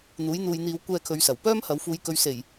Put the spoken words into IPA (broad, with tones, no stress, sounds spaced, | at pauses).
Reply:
n̪ uː˨˥ j n̪ uː˧ j n̪ iː˧ w kʷ ɛː˧ kʰ ɵ˨˧ ɥ s ɐ˨˩ w p œː˥ m h ɐ˨˧ w f uː˨ j k ɵ˨˧ ɥ s e˨˩ j